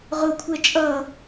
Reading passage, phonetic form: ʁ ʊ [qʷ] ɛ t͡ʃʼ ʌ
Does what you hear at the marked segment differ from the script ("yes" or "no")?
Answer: yes